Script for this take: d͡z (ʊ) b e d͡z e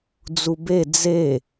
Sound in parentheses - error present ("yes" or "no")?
yes